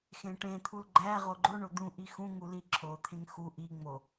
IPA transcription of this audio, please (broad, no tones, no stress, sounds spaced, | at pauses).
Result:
x ẽ ʈ ẽ t̪ʰ u l ɡ͡ǃ æ ʁ o ɡ͡ǃ o ɳ o d̪ ũ ʔ i x ũ ŋ u l i ǁʰ o t̪ʰ ẽ ŋ x u ʔ i ŋ͡m o